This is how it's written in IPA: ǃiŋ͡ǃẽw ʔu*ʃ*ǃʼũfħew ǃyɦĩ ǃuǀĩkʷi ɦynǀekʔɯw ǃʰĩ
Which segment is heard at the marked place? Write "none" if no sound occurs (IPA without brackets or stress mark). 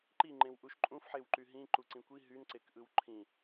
ʃ